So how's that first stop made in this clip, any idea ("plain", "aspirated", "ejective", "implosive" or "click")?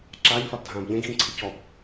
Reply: click